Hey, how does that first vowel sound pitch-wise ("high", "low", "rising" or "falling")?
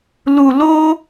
low